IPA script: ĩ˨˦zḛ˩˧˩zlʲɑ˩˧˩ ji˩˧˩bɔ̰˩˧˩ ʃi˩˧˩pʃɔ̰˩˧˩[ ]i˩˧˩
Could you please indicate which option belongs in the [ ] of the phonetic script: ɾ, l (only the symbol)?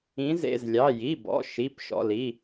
l